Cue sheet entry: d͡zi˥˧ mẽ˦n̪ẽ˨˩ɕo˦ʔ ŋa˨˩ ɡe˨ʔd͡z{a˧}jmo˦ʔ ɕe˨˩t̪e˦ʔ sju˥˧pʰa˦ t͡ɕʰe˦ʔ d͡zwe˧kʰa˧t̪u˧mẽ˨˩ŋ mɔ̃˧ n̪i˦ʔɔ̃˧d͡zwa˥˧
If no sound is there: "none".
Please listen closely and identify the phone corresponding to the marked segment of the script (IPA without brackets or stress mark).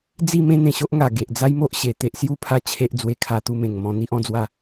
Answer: a˦